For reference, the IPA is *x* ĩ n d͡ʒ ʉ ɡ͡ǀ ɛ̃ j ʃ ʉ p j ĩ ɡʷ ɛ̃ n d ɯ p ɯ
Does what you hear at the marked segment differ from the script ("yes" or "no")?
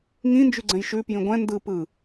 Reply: yes